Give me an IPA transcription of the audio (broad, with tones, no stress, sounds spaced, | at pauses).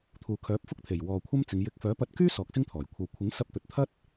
t̪ʰ uː˨ kʰ œː˨˥ p̚ f ʊ˥ k̚ t̪ʰ e˨˩ j w ɔː˨ kʷʰ ɐ˥ m t͡s ɪ˨˧ ŋ j ɪ˧ k̚ f œː˨˥ p ɐ˧ t̚ k yː˥ s ɔː˨˥ k̚ s ɪ˥ ŋ t̪ʰ ɔː˨˩ j kʷʰ ɐ˨ w kʷʰ ɪ˨˥ ŋ s ɐ˧ p̚ t̪ ɵ˨ t̚ t̪ʰ ɐ˥ t̚